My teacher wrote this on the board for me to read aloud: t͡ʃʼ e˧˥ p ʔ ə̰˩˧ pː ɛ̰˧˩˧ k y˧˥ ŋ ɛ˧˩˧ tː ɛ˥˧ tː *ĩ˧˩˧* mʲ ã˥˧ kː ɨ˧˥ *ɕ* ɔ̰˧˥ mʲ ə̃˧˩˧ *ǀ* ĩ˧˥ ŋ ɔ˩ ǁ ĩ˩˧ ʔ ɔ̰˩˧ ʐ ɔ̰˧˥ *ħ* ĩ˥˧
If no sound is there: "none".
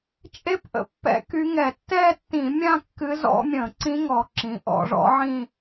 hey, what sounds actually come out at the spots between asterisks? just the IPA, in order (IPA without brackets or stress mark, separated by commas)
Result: ĩ˧˩˧, z, ǀ, ʕ